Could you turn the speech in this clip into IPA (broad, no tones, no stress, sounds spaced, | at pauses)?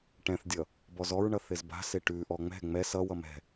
ʈ ɛ̃ θ dʲ ʌ | b ɔ z ɔ ɹ ɳ ʌ θ ɪ z b a̤ s ɪ ʈ ʉ ʔ ɔ ŋ͡m ɛ̤ ŋ͡m ɛ s ʌ w ʌ m ɛ̤